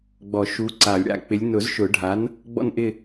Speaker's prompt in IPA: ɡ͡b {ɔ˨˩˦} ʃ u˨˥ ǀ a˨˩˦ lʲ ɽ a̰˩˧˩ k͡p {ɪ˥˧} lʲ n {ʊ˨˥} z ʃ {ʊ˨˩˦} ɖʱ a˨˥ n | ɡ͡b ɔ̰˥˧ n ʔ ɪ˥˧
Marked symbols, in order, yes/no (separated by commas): yes, no, no, yes